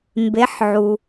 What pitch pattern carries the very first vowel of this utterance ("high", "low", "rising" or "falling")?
rising